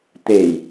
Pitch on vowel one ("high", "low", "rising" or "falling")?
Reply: low